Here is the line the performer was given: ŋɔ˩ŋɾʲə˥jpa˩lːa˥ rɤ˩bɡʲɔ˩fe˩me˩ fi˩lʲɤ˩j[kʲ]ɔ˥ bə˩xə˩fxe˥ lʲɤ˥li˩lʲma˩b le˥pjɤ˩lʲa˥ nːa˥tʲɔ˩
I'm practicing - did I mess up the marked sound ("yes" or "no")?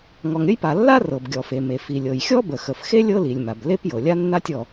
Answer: yes